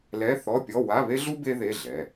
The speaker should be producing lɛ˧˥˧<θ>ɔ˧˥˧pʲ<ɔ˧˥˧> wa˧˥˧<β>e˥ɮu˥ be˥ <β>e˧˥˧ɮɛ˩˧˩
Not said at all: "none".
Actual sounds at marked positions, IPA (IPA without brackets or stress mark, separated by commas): θ, ɔ˧˥˧, β, ð